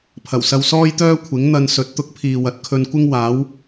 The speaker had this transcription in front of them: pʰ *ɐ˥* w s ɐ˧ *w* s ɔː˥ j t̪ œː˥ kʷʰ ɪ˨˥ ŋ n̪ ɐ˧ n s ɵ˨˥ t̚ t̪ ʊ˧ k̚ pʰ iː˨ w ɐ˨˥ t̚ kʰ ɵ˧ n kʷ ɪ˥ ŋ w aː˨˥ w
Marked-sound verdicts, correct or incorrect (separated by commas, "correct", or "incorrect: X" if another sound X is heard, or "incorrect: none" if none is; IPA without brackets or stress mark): incorrect: ɐ˨˩, correct